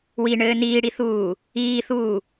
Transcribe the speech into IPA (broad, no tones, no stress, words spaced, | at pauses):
wiɳɘː niːɽiθuː | iːθuː